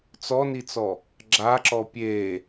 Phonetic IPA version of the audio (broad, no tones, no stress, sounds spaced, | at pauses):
t͡s ɔ n i t͡s ɔ | ɡ͡ǁ a ǁ ɔ pʲ e